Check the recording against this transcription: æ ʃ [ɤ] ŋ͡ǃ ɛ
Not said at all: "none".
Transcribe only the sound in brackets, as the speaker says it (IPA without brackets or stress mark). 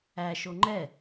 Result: o